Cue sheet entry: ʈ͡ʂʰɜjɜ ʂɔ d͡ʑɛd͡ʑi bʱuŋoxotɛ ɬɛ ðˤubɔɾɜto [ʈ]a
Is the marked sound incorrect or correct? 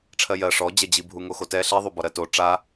incorrect